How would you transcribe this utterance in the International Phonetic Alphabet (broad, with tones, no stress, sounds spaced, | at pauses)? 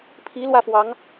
pʰ i˧˥ l w ä˥˩ f w ɑ˧˥ ŋ